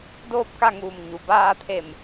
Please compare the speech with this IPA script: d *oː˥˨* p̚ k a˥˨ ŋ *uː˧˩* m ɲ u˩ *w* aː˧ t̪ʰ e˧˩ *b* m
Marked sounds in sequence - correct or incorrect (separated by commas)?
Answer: correct, correct, incorrect, incorrect